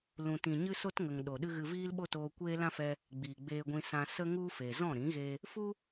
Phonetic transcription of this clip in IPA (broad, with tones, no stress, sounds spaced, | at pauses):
l ũ˨ t ĩ˨ ɲ ɨ˦ s o˦ t ŋ ə˨ ŋ ɗ o˨ ɗ ɨ˦ ɣ ɨ˧ v iː˦ l ɓ o˦ t oː˧ kʷ eː˦ l ã˦ f ɛ˧ | ɡ͡b iː˨ ɡ͡b eː˧ ɡʷ ĩ˧ s ã˧ s ə˦ ŋ u˦ f e˨ z ɔ̃˦˨ ɾ ĩ˨˦ ɣ e˧ | f u˦